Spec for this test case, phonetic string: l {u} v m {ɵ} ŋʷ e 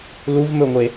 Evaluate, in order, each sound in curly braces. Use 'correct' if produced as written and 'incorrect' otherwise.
correct, correct

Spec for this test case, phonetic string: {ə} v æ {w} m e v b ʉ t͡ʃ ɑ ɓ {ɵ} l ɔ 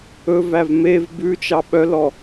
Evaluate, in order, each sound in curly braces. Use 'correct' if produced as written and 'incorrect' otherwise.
incorrect: ɵ, incorrect: v, incorrect: œ

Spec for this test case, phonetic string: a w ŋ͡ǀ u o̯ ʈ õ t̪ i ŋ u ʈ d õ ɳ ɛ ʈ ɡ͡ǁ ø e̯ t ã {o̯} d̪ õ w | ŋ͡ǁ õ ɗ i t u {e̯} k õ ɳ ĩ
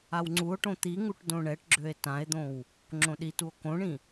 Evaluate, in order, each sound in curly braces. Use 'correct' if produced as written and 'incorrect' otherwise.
incorrect: e̯, incorrect: o̯

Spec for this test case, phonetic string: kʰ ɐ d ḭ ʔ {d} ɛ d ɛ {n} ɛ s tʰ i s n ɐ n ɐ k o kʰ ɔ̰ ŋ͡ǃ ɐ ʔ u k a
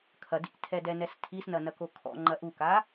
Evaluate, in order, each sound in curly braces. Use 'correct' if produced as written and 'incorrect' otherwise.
incorrect: tʰ, correct

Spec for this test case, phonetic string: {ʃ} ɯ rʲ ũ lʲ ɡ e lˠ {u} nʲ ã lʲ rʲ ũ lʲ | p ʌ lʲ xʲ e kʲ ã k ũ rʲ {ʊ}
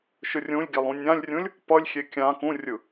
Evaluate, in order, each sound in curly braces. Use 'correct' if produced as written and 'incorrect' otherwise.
correct, incorrect: ũ, incorrect: ɯ

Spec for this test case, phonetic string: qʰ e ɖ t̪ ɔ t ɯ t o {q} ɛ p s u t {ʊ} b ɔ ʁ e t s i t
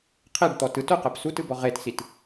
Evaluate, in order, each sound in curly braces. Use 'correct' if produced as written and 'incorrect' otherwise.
correct, incorrect: ɯ

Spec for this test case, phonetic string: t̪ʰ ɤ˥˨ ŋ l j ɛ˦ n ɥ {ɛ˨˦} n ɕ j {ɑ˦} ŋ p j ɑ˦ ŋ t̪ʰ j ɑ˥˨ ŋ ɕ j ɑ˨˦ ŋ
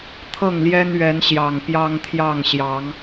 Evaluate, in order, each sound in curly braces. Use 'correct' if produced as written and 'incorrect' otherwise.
correct, incorrect: ɑ˨˩

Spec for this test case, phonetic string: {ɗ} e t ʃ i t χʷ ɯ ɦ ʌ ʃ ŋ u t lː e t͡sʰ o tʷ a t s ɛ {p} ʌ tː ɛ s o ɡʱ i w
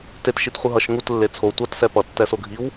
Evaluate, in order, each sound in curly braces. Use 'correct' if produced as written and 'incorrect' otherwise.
incorrect: t, correct

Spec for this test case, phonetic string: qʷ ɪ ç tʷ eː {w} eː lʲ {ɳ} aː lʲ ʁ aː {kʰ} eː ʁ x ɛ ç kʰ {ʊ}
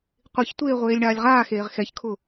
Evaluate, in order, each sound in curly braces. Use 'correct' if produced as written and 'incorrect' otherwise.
incorrect: ʁʷ, correct, incorrect: x, correct

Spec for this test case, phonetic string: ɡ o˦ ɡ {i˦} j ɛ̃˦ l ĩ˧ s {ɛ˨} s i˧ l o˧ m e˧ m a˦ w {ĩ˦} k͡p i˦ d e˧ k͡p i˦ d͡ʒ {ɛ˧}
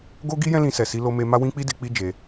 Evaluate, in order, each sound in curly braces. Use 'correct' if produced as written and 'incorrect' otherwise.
correct, correct, correct, incorrect: e˧

